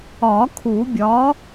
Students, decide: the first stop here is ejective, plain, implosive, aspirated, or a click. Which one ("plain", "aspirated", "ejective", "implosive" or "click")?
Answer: aspirated